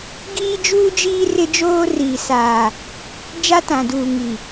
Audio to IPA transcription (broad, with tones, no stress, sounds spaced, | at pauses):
ɡ iː˦ d͡ʒ uː˦ d͡ʒ iː˦ r ɪ˦ d͡ʒ oː˦ r iː˨ s aː˨ | d͡ʒ a˦ t ã˨ d uː˨ ŋ i˨